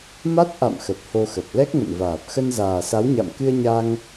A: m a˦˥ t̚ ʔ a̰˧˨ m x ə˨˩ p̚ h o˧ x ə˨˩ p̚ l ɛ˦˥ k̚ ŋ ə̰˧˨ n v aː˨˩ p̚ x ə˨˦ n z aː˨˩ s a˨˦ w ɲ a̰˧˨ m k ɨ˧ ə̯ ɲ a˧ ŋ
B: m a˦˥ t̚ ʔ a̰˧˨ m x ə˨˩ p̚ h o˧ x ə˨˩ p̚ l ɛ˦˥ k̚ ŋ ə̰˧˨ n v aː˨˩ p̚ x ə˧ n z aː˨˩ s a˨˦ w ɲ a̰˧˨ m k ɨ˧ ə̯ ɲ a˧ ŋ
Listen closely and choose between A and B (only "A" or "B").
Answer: B